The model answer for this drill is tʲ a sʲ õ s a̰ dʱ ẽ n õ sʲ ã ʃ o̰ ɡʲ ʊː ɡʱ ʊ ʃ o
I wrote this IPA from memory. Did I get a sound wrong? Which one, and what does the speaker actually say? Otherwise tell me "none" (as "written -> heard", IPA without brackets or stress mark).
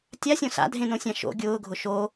none